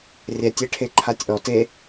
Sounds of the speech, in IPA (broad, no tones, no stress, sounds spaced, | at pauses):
rʲ ɛ tʲ e ʈʰ e ǃʰ a tʲ ʔ ɔ t e